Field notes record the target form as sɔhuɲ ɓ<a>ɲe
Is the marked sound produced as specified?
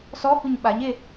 yes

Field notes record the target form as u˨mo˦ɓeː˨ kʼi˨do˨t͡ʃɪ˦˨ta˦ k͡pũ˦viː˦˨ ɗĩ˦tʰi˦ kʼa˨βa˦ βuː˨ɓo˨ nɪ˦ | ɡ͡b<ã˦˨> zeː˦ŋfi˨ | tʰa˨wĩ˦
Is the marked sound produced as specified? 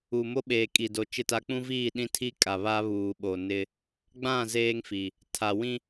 yes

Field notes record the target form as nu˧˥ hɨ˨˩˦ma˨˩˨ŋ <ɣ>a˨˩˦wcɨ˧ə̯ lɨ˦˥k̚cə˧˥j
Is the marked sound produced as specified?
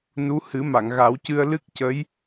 yes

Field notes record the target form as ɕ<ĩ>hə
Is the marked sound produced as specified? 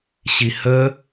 no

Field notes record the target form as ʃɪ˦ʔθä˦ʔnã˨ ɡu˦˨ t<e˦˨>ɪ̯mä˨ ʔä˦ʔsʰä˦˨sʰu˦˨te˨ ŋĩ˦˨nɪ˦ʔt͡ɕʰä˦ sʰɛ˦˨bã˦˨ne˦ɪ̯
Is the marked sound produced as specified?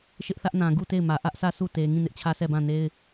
yes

